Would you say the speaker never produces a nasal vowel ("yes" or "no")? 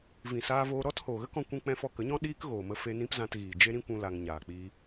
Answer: no